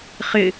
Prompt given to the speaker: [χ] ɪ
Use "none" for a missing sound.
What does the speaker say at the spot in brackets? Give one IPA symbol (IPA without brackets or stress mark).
χ